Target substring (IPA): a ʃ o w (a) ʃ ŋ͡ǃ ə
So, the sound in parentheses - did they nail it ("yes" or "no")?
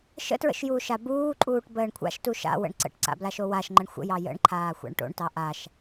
yes